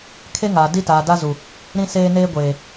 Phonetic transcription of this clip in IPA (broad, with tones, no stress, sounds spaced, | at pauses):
kʰ e˦ ŋ aː˨ d i˦ t aː˨ d a˦ z u˨ | ɾ ĩ˦ s eː˦ n eː˦ ɡʷ eː˨